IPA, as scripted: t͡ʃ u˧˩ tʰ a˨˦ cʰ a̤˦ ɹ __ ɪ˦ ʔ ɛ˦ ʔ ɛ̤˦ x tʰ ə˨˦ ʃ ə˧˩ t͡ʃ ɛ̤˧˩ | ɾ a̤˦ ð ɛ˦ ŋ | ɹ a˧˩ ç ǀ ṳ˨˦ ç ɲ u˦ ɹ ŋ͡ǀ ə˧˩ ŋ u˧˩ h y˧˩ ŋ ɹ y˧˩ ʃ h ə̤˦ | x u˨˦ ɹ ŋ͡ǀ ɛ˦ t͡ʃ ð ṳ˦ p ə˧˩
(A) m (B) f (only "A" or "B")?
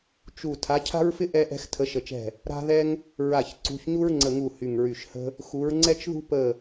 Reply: B